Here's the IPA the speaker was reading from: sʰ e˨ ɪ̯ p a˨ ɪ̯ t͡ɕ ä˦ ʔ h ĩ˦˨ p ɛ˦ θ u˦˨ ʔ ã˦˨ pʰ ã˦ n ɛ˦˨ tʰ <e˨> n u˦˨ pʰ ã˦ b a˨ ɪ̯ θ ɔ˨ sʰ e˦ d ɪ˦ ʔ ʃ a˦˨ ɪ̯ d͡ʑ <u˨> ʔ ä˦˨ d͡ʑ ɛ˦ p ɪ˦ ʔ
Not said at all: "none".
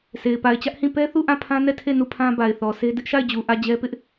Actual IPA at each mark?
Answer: e˦˨, u˨

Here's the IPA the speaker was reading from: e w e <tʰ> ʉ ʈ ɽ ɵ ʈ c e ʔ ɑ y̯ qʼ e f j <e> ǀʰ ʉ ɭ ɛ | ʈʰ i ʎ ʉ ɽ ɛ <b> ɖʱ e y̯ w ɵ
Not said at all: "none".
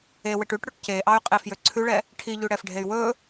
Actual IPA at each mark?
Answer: ʈ, ø, f

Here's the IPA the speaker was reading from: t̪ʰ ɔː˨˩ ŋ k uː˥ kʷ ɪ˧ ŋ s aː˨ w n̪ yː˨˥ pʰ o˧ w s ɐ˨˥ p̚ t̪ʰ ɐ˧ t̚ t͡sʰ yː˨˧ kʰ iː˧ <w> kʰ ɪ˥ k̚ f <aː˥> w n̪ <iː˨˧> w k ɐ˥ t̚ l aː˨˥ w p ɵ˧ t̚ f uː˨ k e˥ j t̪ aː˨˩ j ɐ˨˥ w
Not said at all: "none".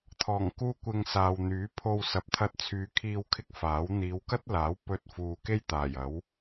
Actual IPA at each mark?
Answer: w, aː˨˥, iː˨˧

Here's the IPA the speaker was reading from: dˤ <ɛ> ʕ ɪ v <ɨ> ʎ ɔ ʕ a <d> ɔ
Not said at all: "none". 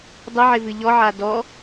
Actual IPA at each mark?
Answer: ə, ɨ, d

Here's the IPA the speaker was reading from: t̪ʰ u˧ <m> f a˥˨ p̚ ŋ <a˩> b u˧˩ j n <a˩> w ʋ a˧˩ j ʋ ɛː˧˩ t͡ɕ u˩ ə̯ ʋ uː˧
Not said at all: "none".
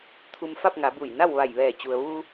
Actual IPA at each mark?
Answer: m, a˩˧, a˥˨

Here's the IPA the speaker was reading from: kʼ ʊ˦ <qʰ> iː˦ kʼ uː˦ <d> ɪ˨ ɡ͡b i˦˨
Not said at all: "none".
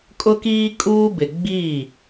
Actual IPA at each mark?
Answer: k, b

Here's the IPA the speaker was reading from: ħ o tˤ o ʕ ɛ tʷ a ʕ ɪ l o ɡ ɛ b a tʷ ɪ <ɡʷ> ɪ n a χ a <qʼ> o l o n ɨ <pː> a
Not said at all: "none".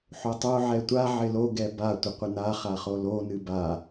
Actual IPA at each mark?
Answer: qʷ, χ, b

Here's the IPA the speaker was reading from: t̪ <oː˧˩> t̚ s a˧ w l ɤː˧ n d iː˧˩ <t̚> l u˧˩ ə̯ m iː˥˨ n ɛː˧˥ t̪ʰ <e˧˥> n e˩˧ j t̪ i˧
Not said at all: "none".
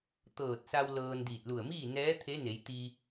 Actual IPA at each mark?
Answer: ɤː˧˩, t̚, e˧˥

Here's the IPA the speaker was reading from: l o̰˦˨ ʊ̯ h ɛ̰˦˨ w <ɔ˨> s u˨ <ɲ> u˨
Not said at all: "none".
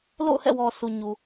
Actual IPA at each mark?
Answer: ɔ˨, ɲ

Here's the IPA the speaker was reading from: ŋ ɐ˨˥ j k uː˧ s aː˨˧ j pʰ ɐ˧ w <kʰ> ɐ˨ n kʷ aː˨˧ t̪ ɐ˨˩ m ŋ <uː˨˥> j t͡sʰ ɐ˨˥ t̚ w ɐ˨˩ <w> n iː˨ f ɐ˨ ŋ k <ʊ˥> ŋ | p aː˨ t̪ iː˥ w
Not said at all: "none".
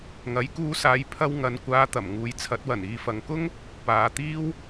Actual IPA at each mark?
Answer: ŋ, uː˨, none, ʊ˥

